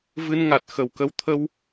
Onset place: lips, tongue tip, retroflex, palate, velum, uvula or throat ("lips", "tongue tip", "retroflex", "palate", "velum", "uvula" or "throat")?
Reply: lips